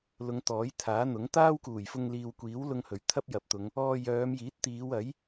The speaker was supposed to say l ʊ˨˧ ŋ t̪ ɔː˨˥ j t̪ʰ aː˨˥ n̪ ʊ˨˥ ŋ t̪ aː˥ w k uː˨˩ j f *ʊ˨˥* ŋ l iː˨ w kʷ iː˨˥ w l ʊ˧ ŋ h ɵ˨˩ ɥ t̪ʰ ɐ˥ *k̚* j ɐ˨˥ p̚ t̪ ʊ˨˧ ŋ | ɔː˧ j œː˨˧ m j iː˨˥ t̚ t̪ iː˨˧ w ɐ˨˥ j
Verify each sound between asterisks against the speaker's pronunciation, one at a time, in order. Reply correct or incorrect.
incorrect, incorrect

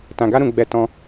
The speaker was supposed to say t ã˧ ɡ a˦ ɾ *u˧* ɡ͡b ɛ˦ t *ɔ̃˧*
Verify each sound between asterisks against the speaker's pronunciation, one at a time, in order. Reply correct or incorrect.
incorrect, correct

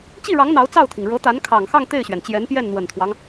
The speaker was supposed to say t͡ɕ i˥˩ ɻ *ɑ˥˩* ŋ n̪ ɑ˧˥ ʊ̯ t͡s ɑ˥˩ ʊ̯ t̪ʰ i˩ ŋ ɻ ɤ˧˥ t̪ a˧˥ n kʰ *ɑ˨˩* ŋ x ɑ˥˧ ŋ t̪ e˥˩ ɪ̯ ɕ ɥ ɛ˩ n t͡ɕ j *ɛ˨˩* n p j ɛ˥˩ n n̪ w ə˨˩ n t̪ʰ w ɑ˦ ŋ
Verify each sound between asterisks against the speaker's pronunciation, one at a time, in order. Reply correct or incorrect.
incorrect, correct, incorrect

